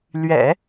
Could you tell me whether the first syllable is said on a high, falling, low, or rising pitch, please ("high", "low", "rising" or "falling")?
low